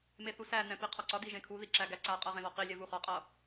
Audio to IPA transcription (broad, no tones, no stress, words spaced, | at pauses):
meθusænɛ̃ piqʰɒǀɒdi ʒẽkʰuði ǁæɡæǀaqʼʌ ʁẽðɒqilʲɛ vuχɒqʼʌ